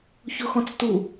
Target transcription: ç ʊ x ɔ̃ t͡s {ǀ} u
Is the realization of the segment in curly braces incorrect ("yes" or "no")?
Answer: yes